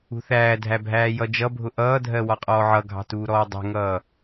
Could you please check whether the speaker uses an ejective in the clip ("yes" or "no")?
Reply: yes